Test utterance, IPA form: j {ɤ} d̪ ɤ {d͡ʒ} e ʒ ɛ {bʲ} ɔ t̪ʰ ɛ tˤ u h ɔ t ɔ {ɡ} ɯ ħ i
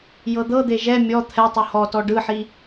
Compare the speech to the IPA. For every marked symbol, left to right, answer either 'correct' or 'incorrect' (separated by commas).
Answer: correct, incorrect, incorrect, incorrect